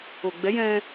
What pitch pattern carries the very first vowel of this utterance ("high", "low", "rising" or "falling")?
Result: low